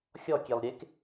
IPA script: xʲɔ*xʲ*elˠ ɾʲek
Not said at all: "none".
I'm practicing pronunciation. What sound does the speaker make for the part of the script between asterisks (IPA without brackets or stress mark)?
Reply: kʲ